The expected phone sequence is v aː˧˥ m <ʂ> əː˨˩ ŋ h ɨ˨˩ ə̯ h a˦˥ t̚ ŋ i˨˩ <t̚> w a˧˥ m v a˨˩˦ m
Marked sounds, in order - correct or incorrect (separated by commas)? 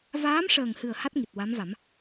correct, correct